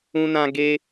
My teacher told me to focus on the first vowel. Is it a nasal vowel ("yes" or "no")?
yes